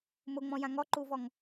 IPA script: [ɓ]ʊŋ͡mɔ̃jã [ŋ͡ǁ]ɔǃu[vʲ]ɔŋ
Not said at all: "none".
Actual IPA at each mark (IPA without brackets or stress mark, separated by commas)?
m, ŋ, v